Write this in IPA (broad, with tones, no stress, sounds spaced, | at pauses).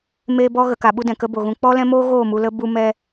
m eː˦ b ɔ˦ ɣ ə˨ k a˨ ɓ u˧ d ɛ̃˨ k ə˦ b o˨ ɣ ũ˧ k͡p ɔ˦ l ɛ̃˦ m oː˦ ɣ oː˦˨ m u˨ l ə˧ b u˧ m ɛ˧